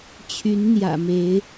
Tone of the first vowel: rising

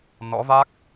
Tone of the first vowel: rising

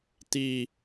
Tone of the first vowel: low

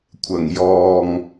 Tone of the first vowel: low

